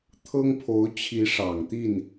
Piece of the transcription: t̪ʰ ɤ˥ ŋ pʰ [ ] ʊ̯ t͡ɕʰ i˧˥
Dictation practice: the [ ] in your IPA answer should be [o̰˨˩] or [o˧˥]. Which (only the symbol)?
o˧˥